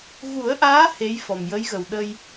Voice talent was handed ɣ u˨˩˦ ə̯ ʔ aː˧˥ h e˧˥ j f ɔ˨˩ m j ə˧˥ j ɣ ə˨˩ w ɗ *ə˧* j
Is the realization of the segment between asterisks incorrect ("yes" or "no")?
no